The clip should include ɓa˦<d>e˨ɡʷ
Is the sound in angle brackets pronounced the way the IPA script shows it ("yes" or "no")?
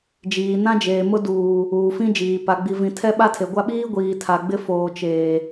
no